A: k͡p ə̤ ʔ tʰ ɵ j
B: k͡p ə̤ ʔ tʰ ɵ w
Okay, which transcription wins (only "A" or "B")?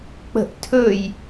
A